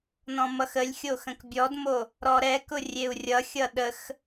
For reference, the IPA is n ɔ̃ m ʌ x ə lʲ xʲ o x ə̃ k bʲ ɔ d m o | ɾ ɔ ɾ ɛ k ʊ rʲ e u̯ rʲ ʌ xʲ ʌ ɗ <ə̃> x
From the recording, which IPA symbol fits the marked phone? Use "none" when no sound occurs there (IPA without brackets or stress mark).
ə